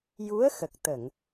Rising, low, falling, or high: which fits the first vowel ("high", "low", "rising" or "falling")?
rising